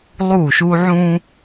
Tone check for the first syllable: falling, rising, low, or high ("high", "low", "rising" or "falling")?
falling